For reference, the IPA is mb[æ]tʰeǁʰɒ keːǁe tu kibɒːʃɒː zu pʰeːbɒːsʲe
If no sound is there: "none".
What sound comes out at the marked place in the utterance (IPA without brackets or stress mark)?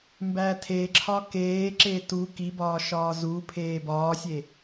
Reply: æ